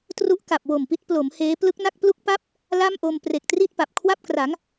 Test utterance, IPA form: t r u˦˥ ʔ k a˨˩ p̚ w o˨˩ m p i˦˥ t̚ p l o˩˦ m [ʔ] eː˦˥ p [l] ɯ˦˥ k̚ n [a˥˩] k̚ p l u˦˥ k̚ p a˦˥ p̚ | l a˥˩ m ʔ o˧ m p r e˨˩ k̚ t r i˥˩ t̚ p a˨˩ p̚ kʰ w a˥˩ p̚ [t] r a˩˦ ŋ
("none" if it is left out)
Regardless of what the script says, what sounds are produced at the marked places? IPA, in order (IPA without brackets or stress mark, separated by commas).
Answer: h, l, a˥˩, k